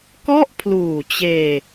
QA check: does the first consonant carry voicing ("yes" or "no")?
no